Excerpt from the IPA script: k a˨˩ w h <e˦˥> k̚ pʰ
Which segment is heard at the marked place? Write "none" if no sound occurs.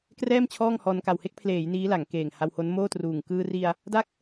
e˥˩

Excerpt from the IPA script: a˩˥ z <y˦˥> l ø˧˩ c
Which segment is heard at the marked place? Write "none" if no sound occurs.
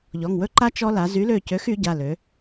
y˩˥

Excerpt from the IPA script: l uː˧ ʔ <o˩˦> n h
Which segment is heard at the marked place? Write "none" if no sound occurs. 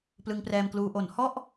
o˩˦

